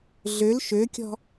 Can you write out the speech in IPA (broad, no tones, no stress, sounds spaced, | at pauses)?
ɮ ø l ʃ ø kʲ ɔ̤